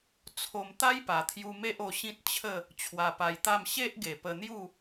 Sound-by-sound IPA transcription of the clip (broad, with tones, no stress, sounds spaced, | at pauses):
t͡sʰ o˧ m t̪ a˦ j p a˨˩ t̪ʰ j u˧ m e˦ ʔ o˧ ɕ ĩ˦ t̚ t͡ɕʰ ə˥˧ | t͡ɕʰ w a˧ p a˧ j t̪ a˥˧ m ɕ e˦ ʔ ɡ e˨˩ p ə˧ n̪ j u˥˧